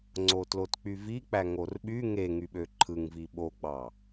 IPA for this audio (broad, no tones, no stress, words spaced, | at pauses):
ŋ͡ǀotlotk͡pyvi k͡pæŋorɓy ŋeŋyɓø ǃʰɯŋvi ɓoɡ͡bɑ